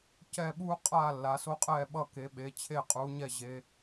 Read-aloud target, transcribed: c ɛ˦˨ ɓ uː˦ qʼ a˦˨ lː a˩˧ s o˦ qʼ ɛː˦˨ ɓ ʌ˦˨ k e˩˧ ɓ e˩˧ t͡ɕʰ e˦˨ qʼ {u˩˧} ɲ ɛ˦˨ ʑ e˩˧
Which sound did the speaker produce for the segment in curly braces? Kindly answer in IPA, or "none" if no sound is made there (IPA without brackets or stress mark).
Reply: u˩˧